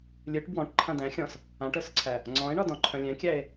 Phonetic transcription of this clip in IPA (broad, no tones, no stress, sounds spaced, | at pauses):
lʲ ɨ ʈ b w ɔ̃ ʈ ǃʰ ã d æ̃ xʲ ɔ̃ s | ã ʈ œ s ǀʰ æ | ŋ͡ǀ ɔ̃ e̯ ɳ ɒ d ɔ̃ ǃʰ œ̃ lʲ ɛ̃ kʲ æ e̯